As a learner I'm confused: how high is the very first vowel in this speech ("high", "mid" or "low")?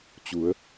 high